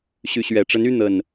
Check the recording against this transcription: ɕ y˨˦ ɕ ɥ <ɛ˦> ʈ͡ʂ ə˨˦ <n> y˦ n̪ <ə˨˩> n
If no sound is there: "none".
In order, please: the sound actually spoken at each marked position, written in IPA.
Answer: ɛ˨˩, n, ə˨˩

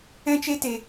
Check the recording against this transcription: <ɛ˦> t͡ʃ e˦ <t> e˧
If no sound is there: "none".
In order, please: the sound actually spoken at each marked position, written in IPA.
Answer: ɛ̃˦, t

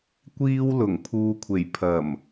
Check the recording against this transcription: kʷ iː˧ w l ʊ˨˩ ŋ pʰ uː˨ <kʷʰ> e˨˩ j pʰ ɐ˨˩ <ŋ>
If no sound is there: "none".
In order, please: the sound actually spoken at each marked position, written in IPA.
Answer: kʷʰ, m

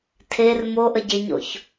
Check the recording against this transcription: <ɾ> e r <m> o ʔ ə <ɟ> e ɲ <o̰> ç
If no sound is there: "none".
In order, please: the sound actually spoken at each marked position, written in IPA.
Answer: tʰ, m, ɟ, o̰

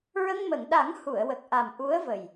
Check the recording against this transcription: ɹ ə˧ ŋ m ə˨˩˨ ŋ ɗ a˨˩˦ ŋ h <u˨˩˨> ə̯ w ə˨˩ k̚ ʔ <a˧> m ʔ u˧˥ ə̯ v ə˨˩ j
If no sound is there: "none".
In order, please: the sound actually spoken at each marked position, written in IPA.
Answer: u˨˩˨, a˨˩

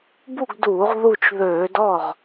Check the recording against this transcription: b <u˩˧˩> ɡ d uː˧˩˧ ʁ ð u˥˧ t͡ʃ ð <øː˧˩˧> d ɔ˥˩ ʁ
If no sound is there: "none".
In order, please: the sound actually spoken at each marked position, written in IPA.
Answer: u˥˧, øː˧˩˧

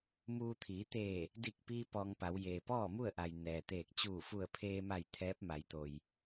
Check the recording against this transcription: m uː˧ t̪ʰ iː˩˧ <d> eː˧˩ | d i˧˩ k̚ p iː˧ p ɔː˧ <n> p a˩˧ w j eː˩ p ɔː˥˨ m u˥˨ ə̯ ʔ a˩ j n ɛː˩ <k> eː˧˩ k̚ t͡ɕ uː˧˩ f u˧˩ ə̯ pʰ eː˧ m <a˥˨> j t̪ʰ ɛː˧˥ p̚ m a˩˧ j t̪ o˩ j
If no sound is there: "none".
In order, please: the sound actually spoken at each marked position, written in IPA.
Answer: t̪, ŋ, t̪, a˧˩

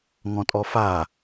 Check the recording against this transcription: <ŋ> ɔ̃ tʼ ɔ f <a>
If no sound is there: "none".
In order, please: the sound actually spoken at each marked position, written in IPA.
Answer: ŋ, a

